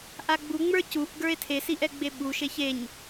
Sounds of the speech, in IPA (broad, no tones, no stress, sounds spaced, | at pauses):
ʔ a ɡ͡b u ŋ͡m ə˞ c u ʔ ɡ ə˞ e̯ tʰ e s i ʔ ɛ ɡ͡b e ɓ u ʃ e ç e ɲ